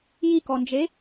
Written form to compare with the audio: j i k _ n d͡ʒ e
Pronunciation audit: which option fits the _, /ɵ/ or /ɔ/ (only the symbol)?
ɔ